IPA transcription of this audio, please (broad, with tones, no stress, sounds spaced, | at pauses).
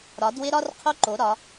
ɾ ɒ˨˥ d w ɪ˥ ɾ ɒ˥ r qʰ o˥ ǃ o˨˥ ɾ ɒ˨˥